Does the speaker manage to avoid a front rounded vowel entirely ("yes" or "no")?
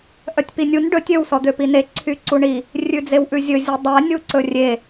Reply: no